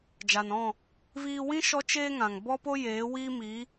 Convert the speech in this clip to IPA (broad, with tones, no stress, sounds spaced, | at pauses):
d͡ʒ a˨ n ɔ̃˦˨ | v iː˧ w ĩ˦ ʃ ɔ˦ t͡ʃ eː˦ ŋ ã˨ ŋ b ɔ˦ p o˦ j eː˨˦ w iː˦ m iː˨˦